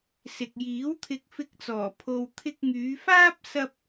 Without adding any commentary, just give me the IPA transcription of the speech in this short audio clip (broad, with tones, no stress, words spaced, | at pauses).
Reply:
sɪ˨k̚jiː˨˥wt̪ʰɪ˧k̚ fɪ˧k̚t͡sɔː˨˩ pʰo˨wt̪ʰɪ˧k̚ŋyː˨˧faː˥p̚ sɐ˥p̚